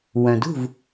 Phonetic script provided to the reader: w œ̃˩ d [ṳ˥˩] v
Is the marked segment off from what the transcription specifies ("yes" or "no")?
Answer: no